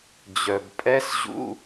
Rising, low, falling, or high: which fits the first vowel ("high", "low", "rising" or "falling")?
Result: low